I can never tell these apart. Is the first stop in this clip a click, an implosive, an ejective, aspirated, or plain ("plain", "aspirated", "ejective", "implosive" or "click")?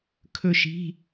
aspirated